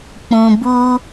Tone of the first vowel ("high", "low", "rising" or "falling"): low